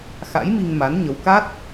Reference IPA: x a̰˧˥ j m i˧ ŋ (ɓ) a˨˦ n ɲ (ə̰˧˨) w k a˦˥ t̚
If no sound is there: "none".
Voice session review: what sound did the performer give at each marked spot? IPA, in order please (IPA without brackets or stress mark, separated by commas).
m, ə˨˦